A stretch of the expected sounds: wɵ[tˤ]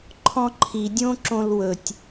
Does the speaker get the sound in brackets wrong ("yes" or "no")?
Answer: yes